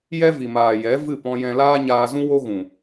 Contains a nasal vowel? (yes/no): yes